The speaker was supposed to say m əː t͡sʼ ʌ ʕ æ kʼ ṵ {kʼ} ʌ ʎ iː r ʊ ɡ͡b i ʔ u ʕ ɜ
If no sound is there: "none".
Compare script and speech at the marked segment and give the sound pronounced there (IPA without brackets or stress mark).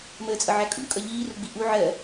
kʼ